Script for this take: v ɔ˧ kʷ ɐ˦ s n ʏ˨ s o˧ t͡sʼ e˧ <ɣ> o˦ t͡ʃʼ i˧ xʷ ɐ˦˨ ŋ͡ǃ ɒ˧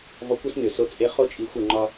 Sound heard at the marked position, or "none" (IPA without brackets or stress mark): χ